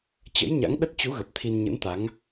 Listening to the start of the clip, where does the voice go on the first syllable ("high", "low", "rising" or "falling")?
rising